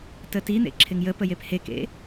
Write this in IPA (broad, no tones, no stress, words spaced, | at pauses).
tətin̪ḛ ǁʰɪŋjəpə jephekḛ